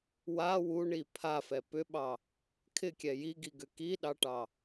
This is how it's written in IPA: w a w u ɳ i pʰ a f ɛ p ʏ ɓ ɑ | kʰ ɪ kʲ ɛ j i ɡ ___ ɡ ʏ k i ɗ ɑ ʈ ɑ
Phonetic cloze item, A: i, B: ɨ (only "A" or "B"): A